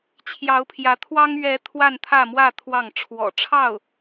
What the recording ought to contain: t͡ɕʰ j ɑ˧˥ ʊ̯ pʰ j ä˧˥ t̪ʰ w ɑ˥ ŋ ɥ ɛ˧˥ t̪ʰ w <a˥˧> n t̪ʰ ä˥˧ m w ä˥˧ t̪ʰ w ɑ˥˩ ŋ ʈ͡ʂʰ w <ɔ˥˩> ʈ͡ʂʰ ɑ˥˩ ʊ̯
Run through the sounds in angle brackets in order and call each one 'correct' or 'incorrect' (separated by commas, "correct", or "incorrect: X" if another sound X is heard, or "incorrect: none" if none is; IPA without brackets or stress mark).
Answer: correct, incorrect: ɔ̰˨˩